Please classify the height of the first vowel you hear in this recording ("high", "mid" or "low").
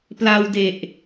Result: low